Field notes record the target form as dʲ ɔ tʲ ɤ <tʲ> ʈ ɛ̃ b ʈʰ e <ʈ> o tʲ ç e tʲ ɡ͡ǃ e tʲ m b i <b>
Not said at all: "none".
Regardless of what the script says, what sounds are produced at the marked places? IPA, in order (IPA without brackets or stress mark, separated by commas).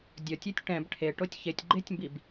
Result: tʲ, ʈ, b